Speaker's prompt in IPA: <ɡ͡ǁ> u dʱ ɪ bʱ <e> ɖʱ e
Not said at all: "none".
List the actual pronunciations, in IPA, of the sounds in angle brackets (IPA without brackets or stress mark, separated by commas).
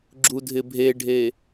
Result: ɡ͡ǁ, e